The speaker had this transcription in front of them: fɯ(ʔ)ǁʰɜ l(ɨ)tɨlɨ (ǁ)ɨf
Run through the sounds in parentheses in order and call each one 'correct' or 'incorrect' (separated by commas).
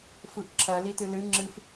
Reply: correct, incorrect, incorrect